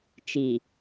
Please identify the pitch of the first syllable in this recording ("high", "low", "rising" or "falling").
low